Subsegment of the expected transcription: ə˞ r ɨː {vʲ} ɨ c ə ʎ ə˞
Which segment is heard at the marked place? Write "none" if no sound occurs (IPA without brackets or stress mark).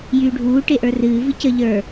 v